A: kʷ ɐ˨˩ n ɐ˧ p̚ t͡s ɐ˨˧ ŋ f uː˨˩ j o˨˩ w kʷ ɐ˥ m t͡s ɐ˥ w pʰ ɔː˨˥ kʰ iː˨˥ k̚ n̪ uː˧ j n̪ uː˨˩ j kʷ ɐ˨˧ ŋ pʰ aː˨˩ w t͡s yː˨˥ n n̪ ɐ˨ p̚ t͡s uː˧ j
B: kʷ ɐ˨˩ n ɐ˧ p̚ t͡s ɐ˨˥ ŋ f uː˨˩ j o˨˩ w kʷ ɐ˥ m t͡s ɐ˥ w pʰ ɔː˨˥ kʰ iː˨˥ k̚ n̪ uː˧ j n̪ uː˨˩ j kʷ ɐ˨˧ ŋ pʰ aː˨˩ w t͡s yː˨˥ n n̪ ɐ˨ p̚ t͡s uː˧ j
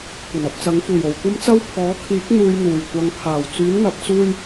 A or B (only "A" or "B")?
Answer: B